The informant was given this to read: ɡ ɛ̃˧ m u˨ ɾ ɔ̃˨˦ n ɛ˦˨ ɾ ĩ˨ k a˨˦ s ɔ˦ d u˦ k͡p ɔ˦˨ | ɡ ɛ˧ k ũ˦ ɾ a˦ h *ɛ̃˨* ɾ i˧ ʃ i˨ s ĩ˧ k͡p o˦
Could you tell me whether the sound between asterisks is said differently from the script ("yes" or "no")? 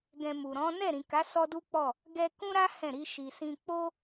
yes